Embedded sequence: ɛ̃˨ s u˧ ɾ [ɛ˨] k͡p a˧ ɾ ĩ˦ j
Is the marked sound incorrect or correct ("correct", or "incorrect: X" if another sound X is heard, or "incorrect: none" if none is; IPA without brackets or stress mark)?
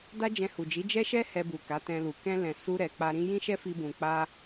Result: correct